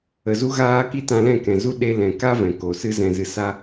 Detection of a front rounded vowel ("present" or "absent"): absent